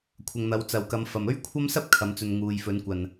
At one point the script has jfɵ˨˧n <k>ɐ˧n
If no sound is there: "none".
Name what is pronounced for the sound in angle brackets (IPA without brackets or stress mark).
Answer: kʷ